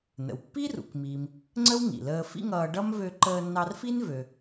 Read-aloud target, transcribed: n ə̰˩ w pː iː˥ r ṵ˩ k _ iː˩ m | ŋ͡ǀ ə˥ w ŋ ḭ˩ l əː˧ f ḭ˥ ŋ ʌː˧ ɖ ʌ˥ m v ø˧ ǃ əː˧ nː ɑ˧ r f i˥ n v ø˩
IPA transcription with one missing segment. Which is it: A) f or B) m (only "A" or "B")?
B